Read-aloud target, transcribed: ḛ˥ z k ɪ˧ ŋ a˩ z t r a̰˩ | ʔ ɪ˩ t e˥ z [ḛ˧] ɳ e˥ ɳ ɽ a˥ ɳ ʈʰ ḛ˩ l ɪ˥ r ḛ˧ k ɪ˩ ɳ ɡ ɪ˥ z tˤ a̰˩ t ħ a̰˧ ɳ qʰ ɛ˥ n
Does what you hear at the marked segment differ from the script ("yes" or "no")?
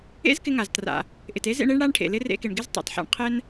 no